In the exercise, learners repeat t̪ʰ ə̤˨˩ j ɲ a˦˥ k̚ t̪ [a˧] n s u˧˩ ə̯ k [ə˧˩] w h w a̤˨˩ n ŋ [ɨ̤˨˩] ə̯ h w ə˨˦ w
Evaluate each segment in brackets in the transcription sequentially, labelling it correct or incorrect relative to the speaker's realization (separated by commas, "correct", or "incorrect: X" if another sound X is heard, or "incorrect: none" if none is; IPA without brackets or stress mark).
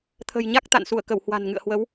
incorrect: a̰˧˨, correct, incorrect: ɨ̰˧˨